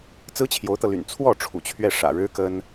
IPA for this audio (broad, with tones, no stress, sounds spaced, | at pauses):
t͡s ɹ̩˥ t͡ɕʰ j o˧˥ ʊ̯ t̪ ɤ˧ l y̰˨˩ n t͡sʰ w ɔ˥˩ ʈ͡ʂʰ ṵ˨˩ t͡ɕʰ ɥ ɛ˥˩ ʂ ä̰˨˩ ɻ ɻ̩˥ k ə˥ n